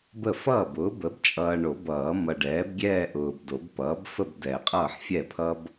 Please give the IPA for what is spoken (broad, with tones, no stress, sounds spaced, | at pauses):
b ə˥˩ f ʌː˥˩ b ʊː˩˥ b ə˩˥ b t͡ʃʼ ʌː˨ ɳ o˨˩˦ b ʌː˨˩˦ m ʌ˨ ɖ ɛː˩˥ b ɡʲ ɛː˥˧ ʔ ʊː˨ b d o˨˩˦ b p ʌː˩˥ b f ə˥˧ b d ɛ˨˩˦ qʼ ʌː˥˩ ħ fʲ ɛ˥˩ pʰ ʌ˥ b